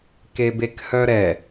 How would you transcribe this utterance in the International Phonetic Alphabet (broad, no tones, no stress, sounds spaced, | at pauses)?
k e b e k h œ ɾ ɛ